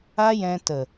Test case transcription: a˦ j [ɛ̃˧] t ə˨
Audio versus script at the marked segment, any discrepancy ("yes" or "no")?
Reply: no